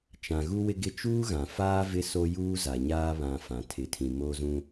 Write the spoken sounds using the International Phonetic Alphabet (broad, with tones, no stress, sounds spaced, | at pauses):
t͡ʃ ã˨ ɣ u˦ w ɪ˦ ɡ ɪ˦ t͡ʃ uː˦ ɣ ã˨ f aː˦ v ɪ˦ s o˦ j uː˦ z a˨ ɲ aː˦ β ã˨ f ã˨ tʰ ɪ˨ tʰ ĩ˨ m o˦ z ũ˦